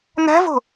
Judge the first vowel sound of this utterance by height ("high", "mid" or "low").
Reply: low